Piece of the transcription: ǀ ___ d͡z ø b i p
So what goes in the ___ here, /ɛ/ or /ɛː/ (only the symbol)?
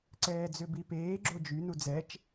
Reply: ɛː